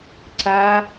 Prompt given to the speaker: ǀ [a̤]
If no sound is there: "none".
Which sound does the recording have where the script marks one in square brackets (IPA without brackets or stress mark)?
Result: a